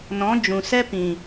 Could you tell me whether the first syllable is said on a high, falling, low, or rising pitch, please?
rising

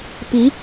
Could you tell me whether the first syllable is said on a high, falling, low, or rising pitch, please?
rising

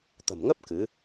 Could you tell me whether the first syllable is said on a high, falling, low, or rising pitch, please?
low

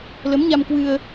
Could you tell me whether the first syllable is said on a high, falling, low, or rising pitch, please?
rising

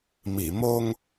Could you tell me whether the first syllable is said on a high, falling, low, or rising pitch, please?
low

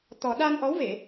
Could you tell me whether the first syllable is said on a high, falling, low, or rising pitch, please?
low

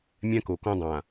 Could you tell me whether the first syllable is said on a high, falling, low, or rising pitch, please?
high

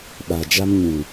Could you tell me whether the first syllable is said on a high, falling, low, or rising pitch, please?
low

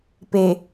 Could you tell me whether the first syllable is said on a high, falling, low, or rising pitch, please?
low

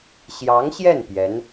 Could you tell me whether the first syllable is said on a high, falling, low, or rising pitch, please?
rising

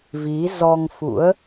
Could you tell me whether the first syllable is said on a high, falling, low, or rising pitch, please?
rising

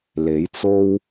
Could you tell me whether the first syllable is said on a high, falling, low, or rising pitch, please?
rising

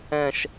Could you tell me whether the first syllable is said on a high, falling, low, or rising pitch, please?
low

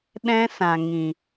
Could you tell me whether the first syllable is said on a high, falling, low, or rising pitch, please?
high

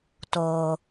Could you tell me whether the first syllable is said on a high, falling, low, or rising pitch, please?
low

